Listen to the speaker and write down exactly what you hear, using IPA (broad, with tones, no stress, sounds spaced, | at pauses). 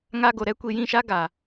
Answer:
ŋ aː˦ ɡ o˨ ɾ ɛ˨˦ kʷ i˨ j ĩ˦˨ ʃ a˦ ɡ a˨